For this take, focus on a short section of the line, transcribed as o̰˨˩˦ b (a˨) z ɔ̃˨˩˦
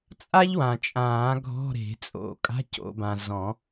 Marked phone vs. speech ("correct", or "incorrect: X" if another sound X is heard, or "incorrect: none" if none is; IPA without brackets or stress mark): incorrect: ã˨